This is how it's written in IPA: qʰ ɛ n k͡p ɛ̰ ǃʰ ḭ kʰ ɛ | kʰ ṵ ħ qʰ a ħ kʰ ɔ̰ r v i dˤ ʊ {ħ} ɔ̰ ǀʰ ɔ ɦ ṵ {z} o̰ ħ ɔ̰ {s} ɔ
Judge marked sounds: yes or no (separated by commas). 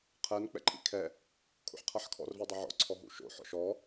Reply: no, no, no